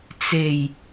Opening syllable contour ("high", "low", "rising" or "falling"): low